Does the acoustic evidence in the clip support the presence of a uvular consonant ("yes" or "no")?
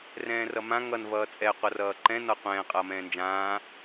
yes